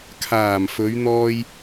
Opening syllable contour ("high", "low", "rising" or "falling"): low